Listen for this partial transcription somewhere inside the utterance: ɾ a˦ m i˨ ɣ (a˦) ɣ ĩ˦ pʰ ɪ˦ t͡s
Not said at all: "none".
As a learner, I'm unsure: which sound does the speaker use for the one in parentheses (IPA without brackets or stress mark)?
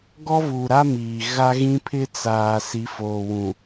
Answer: a˦